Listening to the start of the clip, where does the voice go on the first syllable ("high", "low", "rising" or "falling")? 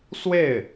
falling